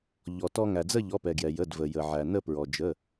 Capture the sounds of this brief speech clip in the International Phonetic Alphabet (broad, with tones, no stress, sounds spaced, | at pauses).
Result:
ʎ ɔ˩ t ɔ˧ ŋ æ˩ d͡z ə˥˧ ʎ ɔ˩˧˩ p ɛ˩ ɡ j ɛ˩ j ə˩˧˩ d v ə˩ j ə˩ ʕ æ˩ n ə˥˧ p ɹ ɔ˩ d͡ʒ ə˩˧˩